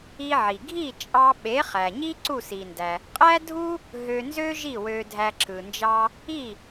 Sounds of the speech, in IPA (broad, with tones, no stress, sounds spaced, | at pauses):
i˧ ʕ i˩ ɡʱ i˥˩ t͡ʃʼ ɑ˧ ɓ e˩˥ χ æ˩ ɲ i˥ ǀ u˥˩ s i˩ n d æ˩ | qʼ æ˥ dʱ u˥ | ɦ ø˧ n z ø˥ ʒ i˥˩ w ø˧ dʱ æ˧ ǁ ɯ˩ n d͡ʒ ɑ˥ | i˥˩